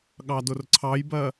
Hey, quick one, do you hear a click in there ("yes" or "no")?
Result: yes